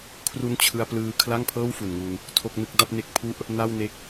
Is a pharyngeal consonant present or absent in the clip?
absent